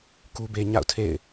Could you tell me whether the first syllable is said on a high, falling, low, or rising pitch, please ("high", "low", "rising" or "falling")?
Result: high